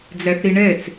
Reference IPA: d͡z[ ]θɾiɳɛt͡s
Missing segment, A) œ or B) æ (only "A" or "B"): B